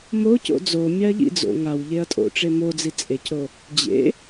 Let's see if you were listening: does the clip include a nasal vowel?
no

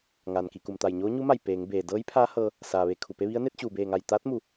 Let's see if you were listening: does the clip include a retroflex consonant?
no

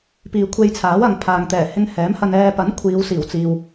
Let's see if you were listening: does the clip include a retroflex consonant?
no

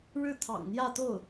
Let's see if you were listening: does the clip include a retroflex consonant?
yes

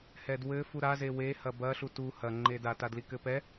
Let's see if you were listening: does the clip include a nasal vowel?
no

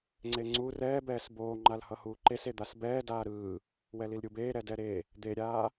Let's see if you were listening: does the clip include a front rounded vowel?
no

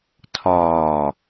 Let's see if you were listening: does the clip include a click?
no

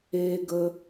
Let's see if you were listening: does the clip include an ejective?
no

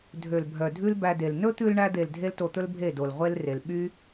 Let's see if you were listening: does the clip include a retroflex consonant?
yes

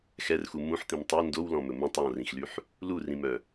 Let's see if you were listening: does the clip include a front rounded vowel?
yes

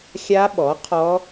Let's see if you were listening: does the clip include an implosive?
yes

